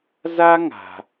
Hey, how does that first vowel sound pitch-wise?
high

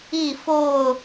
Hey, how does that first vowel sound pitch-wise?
falling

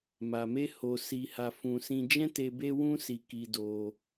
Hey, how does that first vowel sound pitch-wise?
low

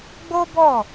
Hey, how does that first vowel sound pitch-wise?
high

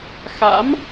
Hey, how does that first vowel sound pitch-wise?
rising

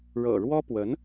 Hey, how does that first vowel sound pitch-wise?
low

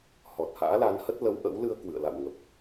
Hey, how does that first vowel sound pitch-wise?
low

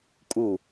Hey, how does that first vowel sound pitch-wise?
falling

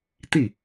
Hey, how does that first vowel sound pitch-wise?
falling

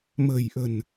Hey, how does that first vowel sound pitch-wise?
low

